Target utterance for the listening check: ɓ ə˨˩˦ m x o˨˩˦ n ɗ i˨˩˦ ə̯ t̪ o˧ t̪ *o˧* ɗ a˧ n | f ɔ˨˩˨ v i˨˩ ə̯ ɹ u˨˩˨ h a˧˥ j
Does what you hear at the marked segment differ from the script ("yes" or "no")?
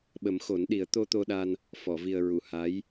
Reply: no